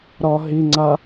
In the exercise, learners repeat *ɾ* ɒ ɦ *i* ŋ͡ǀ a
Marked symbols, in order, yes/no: yes, yes

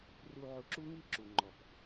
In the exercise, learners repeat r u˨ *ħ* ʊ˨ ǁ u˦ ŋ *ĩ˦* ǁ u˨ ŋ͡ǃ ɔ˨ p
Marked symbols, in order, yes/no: no, no

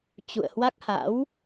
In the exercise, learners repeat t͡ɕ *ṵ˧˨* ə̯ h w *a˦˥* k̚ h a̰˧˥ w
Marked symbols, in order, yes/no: yes, yes

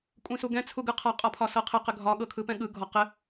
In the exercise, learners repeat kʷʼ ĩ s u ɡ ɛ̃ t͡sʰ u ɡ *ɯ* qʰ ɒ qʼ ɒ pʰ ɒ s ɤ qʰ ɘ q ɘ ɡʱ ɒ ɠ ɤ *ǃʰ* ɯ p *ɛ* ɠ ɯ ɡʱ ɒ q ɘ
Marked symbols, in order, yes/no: yes, no, no

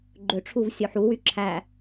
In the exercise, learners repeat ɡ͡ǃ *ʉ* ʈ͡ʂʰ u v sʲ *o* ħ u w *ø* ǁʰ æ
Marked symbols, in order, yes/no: no, yes, no

